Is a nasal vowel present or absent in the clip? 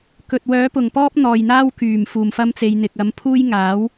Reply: absent